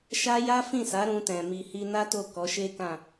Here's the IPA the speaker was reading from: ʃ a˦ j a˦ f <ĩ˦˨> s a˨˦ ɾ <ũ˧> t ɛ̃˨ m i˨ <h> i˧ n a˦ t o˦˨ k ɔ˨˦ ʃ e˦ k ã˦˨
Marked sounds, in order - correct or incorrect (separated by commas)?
correct, correct, correct